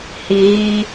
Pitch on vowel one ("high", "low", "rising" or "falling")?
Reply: low